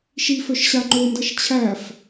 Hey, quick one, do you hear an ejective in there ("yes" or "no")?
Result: no